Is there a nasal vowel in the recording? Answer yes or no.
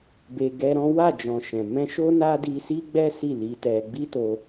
yes